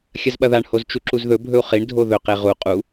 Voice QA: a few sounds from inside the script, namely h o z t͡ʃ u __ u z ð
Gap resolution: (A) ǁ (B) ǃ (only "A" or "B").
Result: A